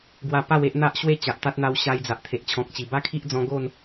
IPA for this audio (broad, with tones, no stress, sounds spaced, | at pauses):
ɡ w a˧ p a˥˧ w e˦ ʔ n̪ a˦ ʔ ɕ w e˥˧ t͡ɕ a˨ ʔ t̪ a˦ t̚ n̪ a˧ w ɕ a˧ j d͡z a˨ ʔ t̪ʰ e˨ ʔ t͡ɕʰ ɔ̃˨ k̚ t͡ɕ i˨˩ b a˦ kʰ i˦ ʔ d͡z ɔ̃˧ ɡ o˥˧ n